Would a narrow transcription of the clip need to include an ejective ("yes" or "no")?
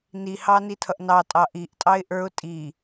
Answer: yes